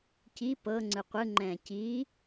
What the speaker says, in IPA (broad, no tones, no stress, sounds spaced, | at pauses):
c i p ɤ ŋ͡ǀ ɯ qʷ ɯ ŋ͡ǃ ɛ̃ː c iː